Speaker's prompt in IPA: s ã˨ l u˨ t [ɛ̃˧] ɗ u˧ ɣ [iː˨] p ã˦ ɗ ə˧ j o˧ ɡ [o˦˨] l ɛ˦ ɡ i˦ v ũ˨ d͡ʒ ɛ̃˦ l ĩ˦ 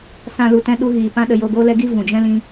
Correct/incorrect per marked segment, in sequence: correct, correct, incorrect

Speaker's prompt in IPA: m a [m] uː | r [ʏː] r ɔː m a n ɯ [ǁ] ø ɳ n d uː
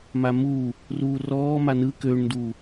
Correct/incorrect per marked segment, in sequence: correct, incorrect, incorrect

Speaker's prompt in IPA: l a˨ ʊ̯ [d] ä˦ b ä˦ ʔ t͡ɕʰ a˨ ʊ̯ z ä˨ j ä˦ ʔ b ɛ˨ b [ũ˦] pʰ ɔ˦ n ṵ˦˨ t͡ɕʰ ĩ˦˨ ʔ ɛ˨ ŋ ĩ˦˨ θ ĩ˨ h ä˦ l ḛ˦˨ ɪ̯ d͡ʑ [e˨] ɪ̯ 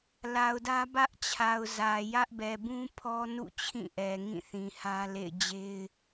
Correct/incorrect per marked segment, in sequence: correct, correct, incorrect

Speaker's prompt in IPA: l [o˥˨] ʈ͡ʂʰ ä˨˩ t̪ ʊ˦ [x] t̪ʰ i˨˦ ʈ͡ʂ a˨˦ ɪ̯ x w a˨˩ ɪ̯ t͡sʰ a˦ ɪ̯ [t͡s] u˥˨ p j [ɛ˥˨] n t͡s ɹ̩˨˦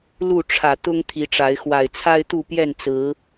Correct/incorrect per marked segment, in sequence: incorrect, incorrect, incorrect, correct

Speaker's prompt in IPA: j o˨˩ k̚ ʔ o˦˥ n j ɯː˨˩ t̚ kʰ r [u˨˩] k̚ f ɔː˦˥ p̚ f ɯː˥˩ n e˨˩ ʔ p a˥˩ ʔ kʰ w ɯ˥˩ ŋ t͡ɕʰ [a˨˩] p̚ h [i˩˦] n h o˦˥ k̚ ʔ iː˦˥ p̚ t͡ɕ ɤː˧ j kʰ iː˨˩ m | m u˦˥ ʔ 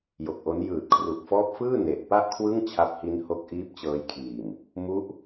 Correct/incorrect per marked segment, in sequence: correct, incorrect, incorrect

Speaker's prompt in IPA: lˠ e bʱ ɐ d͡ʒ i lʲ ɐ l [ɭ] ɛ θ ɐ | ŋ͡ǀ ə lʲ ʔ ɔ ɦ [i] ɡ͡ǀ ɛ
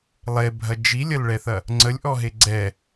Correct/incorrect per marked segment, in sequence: correct, incorrect

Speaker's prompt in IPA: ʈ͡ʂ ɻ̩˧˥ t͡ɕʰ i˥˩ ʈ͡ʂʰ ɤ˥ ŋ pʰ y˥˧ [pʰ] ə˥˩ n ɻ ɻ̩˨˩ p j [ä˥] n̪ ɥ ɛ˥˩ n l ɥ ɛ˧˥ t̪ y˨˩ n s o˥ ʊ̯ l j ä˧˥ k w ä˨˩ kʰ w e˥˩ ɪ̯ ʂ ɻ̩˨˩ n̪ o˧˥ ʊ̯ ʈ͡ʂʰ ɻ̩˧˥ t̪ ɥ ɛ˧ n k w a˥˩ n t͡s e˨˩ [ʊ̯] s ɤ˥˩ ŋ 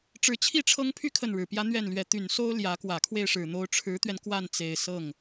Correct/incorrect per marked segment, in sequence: incorrect, correct, incorrect

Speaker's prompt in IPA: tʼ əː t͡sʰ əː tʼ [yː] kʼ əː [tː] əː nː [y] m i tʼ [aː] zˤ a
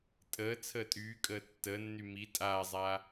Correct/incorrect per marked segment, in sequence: correct, correct, correct, correct

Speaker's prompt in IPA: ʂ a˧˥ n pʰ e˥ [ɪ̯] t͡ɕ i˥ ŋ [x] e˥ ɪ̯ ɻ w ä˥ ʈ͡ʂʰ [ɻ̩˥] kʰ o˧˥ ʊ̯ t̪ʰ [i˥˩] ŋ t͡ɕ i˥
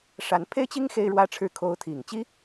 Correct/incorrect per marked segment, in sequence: correct, correct, incorrect, incorrect

